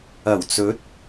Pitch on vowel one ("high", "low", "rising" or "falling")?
low